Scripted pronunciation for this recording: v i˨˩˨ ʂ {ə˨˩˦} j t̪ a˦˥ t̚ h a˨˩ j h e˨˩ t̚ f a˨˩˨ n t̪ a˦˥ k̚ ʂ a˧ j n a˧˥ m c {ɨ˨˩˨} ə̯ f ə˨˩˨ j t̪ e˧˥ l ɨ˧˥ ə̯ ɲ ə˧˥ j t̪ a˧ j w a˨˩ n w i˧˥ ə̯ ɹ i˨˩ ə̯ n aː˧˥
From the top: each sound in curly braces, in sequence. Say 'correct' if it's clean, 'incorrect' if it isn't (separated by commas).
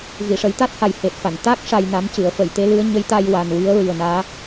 correct, correct